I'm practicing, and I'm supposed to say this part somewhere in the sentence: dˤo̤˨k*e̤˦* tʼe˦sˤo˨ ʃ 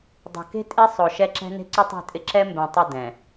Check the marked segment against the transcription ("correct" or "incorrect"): correct